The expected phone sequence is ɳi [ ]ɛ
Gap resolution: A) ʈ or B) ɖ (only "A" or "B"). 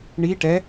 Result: A